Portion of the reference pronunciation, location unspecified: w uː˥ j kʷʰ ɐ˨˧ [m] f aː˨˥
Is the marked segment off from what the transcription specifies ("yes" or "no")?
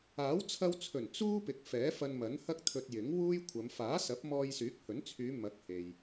no